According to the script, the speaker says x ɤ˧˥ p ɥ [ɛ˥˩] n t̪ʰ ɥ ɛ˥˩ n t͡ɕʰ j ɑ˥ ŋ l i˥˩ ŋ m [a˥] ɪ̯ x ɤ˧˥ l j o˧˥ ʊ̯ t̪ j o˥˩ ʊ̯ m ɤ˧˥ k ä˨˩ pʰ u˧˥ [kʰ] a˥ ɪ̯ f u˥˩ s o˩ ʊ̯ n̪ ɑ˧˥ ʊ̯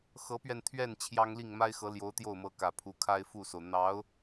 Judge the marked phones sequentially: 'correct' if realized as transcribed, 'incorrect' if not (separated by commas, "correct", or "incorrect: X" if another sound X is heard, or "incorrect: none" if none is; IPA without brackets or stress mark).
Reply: incorrect: ɛ˧, correct, correct